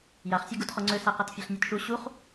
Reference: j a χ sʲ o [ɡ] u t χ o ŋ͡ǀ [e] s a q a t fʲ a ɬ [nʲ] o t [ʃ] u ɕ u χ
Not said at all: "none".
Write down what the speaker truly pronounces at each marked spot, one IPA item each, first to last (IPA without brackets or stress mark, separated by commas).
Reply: ɡ, ø, nʲ, ʃ